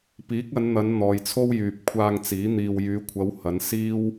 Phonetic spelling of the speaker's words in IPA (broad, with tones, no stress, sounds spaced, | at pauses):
p iː˨˥ k̚ ɐ˨˧ n n̪ ɐ˨˧ n n̪ ɔː˨ j t͡sʰ o˥ w j yː˨ p̚ kʷʰ aː˧ ŋ t͡s iː˨˥ n̪ iː˨ w j yː˨˧ kʷʰ ɐ˨˧ w h ɐ˨˧ n s iː˥ w